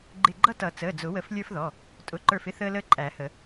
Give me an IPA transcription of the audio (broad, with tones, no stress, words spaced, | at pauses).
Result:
ɡ͡ǃɪ˧˩ɡ͡ǃʌ˦tʌ˨˩˦ t͡səː˩˧˩d͡zʊ˨˩˦wə˨˩˦f lʲə˞˦fðɔ˩˧˩ | tʼʊ˩˧˩ǃə˞˧˩fɪ˦ θəː˦ləː˦ǃʼæ˨˩˦hə˨˩˦